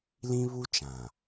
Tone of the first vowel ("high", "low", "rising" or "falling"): high